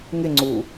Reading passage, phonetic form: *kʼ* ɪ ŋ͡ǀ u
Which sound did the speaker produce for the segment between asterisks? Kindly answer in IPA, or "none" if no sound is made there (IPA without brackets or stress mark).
ŋ